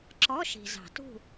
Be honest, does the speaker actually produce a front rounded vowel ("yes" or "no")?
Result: no